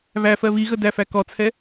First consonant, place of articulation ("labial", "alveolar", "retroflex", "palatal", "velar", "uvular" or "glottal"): labial